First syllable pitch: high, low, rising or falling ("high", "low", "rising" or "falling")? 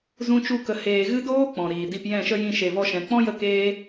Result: high